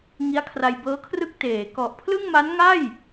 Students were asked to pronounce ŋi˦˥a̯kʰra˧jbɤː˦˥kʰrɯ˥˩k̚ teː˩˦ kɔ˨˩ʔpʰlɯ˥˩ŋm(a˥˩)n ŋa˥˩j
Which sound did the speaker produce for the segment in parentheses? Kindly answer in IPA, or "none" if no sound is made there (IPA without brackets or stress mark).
a˦˥